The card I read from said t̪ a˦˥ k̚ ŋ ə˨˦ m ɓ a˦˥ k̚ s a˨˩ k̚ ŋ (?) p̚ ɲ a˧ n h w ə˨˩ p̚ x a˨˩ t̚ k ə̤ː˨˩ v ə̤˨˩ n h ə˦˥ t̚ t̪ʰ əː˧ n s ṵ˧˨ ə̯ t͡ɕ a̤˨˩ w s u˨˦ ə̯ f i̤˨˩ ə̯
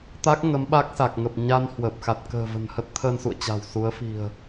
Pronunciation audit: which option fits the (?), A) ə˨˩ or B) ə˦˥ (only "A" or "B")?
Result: A